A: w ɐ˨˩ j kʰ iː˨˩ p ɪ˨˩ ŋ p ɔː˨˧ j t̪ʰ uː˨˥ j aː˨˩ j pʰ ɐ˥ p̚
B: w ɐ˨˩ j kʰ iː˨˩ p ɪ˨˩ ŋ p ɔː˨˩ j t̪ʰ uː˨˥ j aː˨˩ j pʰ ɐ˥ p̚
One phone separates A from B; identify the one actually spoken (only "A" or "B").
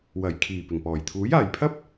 B